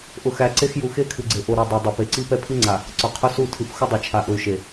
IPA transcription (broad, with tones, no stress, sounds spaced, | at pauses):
ʔ ʊ˨ x æ˨ ǀ e˦ x j u˨ x e˦ kʰ ɨ˨ ɡ͡ǀ e˨ ʔ o˨ ɾ o˨ dˤ a˨ dˤ ɛ˨ p e˨ ǀ i˦ p ɛ˦ pʰ i˦ ŋ͡ǀ a˨ | ǀ ʊ˨ qʰ ʊ˦ s u˦˨ tʰ ɨ˨ p x ʊ˦ dˤ ɛ˨ t͡ʃʰ a˨ ʔ ʊ˨ y̯ ʃ e˨